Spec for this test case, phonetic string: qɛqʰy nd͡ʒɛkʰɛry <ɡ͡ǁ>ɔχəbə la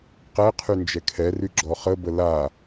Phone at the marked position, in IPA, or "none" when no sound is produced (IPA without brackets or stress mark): ɡ͡ǁ